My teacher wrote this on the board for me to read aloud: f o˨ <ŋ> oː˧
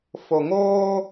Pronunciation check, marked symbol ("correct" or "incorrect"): correct